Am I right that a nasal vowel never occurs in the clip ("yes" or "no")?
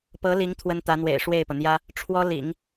yes